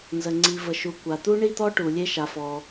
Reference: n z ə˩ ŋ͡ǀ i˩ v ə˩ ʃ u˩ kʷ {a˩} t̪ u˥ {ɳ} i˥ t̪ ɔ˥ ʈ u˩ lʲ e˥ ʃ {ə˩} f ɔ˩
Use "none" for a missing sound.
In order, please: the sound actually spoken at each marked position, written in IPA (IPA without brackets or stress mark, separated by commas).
a˩, ɳ, a˩